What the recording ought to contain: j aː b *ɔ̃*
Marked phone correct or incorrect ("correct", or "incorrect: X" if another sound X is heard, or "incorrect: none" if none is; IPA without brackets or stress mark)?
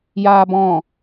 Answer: correct